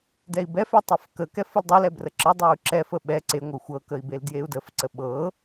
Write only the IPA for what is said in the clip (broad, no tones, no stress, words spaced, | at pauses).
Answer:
dɛi̯bɛfɛ tˤɛfkəkɛ fəldˤɤlɛ brəǁədˤɤu̯ ǁɛfə ɓɛ ǀeŋʷɤ xʷɤkəi̯ beldjeu̯dəfǀə ɓɤ